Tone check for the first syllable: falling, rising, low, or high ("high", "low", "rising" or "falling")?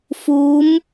rising